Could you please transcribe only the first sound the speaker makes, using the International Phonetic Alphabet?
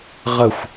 ʁ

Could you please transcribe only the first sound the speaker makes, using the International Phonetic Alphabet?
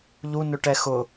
ʎ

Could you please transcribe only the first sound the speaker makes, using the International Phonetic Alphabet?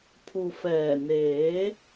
pʰ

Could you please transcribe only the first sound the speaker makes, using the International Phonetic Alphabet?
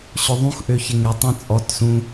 ɕ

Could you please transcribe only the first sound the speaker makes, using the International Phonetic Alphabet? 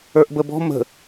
ə˞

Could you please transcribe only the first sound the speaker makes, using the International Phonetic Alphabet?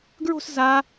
ɡ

